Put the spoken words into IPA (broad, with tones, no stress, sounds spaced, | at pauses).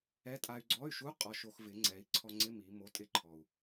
ɛ˧˥˧ tʼ a˧ y̯ ɡ͡ǀ ɔ˧˥˧ y̯ ʃ u˧˥˧ qʼ ɔ˧ ʃ o˧ x v ɪ˩˥ ŋ͡ǀ ɛ˩˥ i̯ ǀʰ ɔ˧ ŋ͡ǀ ɪ˧˥˧ m i˩˧ m o˩˧˩ tʼ ɪ˧ ǃʰ ɔ˩ u̯